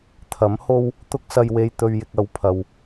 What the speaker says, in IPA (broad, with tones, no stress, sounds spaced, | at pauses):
t̪ʰ ɐ˨˥ m h o˥ w | t̪ ʊ˥ k̚ s ɐ˧ j w e˧ j t̪ ɵ˧ ɥ j ɪ˧ k̚ ɐ˨˧ w pʰ ɐ˨ w